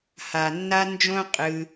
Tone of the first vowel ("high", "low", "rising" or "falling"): low